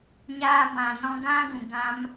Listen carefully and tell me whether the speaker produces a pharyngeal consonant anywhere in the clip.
no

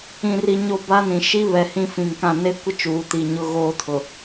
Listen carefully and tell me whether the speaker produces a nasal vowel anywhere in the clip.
yes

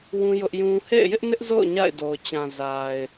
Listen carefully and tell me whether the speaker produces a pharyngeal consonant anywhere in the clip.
no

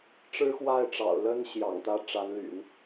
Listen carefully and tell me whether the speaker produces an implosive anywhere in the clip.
no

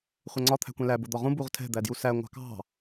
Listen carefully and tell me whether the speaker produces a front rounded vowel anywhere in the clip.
no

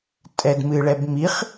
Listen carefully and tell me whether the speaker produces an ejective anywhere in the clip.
yes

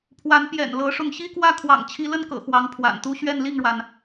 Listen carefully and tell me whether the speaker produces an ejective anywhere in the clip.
no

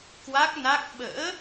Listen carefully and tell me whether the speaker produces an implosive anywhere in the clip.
yes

